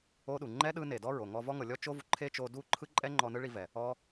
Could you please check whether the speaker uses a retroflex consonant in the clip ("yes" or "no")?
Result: yes